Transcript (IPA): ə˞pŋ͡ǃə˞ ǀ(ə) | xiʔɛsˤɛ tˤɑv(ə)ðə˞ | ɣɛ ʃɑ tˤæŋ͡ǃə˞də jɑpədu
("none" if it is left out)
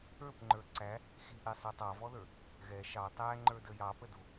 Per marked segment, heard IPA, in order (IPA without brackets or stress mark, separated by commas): æ, ɔ